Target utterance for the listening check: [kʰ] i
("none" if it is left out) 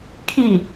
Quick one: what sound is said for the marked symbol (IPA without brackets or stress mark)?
kʰ